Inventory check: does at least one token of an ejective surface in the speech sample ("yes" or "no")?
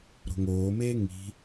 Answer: no